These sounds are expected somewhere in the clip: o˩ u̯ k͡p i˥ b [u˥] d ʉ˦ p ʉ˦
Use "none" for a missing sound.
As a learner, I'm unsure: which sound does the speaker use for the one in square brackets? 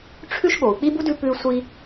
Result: u˥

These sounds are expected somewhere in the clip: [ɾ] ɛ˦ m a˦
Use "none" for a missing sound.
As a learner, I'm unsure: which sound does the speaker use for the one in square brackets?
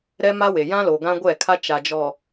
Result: ɾ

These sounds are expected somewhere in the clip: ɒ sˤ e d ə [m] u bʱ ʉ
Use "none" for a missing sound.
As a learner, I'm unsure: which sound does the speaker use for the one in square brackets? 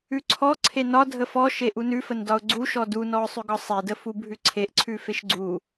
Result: f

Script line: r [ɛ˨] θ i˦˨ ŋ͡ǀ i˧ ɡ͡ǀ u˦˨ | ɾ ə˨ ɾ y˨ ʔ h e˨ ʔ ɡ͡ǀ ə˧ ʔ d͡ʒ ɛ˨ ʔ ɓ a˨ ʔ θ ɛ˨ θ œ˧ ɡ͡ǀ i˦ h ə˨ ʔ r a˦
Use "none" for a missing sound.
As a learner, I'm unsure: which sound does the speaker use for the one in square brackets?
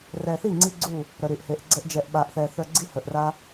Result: ɛ˨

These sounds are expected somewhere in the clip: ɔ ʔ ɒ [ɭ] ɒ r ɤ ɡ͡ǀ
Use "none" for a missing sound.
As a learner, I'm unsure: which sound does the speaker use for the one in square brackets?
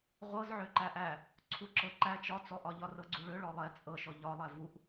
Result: ʎ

